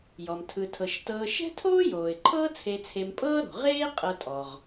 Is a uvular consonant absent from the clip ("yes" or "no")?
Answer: no